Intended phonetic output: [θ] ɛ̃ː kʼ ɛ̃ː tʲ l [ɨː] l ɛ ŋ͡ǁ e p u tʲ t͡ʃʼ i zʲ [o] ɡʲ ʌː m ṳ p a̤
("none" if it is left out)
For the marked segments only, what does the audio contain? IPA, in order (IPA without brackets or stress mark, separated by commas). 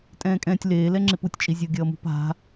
tʼ, eː, o